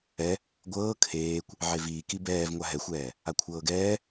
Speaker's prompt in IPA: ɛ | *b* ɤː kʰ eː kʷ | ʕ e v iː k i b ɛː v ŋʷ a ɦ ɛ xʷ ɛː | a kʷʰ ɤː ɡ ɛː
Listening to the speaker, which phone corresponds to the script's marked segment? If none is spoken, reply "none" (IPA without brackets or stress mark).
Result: ɡʷ